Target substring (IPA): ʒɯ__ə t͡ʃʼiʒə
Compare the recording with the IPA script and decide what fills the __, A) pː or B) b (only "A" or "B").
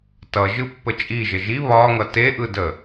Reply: A